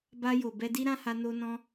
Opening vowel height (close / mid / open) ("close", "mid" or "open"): open